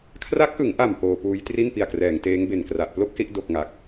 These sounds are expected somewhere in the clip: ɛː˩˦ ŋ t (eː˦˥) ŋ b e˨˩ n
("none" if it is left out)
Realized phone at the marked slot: eː˦˥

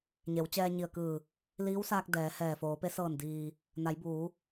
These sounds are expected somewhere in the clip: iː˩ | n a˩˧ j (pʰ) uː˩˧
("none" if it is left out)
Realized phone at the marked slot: b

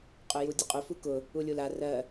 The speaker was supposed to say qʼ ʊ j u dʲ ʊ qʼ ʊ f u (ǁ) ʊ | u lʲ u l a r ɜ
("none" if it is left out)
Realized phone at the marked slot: k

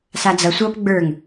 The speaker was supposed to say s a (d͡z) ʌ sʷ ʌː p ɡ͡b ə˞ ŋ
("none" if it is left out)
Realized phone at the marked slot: d͡z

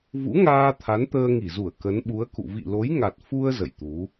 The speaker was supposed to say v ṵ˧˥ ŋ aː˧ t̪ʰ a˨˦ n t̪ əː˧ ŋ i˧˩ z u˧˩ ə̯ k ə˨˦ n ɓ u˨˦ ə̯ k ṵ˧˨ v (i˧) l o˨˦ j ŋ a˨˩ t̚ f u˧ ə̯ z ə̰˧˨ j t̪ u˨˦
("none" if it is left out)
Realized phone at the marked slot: ḭ˧˨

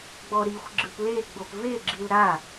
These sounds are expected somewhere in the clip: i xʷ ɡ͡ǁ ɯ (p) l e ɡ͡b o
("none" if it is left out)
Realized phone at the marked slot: p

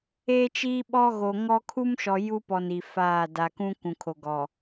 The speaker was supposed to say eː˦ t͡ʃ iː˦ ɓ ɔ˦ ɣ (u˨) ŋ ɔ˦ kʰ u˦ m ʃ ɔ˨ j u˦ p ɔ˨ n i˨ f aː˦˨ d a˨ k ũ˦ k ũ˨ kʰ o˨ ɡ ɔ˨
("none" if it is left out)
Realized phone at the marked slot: o˨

